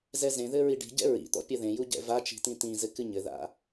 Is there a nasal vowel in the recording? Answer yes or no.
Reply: yes